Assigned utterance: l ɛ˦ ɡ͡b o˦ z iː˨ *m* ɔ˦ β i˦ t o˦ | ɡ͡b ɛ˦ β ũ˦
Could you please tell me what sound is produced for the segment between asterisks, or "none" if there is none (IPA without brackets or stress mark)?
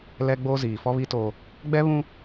f